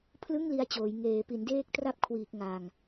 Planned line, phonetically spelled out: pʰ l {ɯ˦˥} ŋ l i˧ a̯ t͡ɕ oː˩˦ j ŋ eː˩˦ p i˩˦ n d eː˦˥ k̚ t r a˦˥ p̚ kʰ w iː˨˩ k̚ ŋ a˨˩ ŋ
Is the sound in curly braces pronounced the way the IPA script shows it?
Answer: no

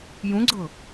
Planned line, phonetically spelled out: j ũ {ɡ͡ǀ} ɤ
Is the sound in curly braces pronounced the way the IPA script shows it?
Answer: yes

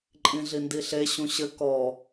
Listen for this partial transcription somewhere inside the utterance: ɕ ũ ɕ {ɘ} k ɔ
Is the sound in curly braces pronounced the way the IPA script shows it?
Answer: yes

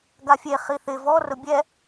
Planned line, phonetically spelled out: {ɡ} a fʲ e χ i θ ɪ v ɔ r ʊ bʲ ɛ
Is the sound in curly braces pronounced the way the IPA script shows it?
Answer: yes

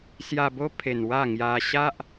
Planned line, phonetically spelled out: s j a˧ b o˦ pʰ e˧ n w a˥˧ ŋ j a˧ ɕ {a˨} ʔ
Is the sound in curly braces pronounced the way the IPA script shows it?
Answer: no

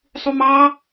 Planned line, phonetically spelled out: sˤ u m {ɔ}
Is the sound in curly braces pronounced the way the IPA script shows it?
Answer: no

